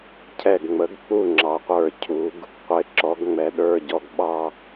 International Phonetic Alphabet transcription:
cʰ ɛ˧˩ ɡ ŋ͡m ə˩˥ ɡ k͡p u˥˩ ŋ͡ǁ ɑ˩˧ qʷ ə˞˧˩ cʰ u˩˧ ɡ | qʷ ɪ˩˧ ǁ ɔ˩˧ ɡ ŋ͡m ɛ˩˧ ɗ ə˞˩˧˩ ɟ ɔ˧˩ ɡ ɓ ɑ˧

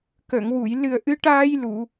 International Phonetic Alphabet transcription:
k ə˨˩˨ ŋ w u˨˩˨ j l ɨ˨˩ ə̯ ʔ ɨ˧˥ ʈ aː˧ j l u˨˩˨

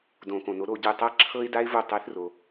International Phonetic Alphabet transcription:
d õ˨˩˦ k õ˩ n o˨˥ ɾ o˦˨ ɟ ɯ˦˨ tˤ a˥ ǁʰ ɤ˥ ɪ̯ d a˥ ɪ̯ v o˦˨ tˤ ɛ˨˥ θ r o˩

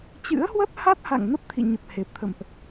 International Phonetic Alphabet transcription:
t͡ɕ ɨ̰˧˥ ə̯ h w ə˦˥ t̚ h a˦˥ t̚ h a̰˧˨ ŋ n ə˦˥ p̚ t̪ʰ ḭ˧˨ ɲ ə˨˩ p̚ h e˨˩ p̚ t̪ʰ ə̰˧˨ m ʔ

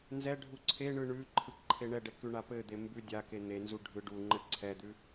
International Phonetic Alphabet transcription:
n z ɛ ɖʱ u ǀʰ e ɳ ɯ ɳ ʉ ǃʰ ɯ k ǃʰ e ɳ ɛ ɖ ɛ k ʉ ɳ a p ɘ d̪ e m b ʉ dʲ a k e n̪ e n z u ɖʱ ɯ ɖ u ŋ͡ǃ ɘ ǀʰ ɛ d̪ ʉ

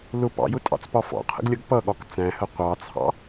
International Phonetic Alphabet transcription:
l ʊ p ɑ̰ j ʊ tʼ ɑ̰ t͡s p ɒ f ɔ̰ qʰ ə̰ ɡ lʲ ʌ ɡ p ʌ ɠ ɒ k t͡s æ̃ h ə qʷ ɑ t͡sʰ ɑ̰

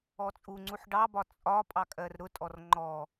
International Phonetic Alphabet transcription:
ɔ t͡sʼ u ŋ͡ǀ u ħ ɖ ɑ b ɒ t͡sʼ ɒ pʼ ɑ kʼ ɜ r ɾ ʊ tʼ ɔ r ŋ͡ǃ ɔ

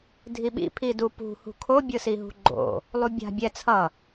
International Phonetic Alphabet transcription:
dʱ i ɓ ḭ pʰ i d u p ṳ h ṳ kʰ o bʲ ɯ s i ɦ ṳ ɡ͡ǃ o̰ | lˠ u bʲ a̤ bʲ ɛ t͡sʰ ʌ

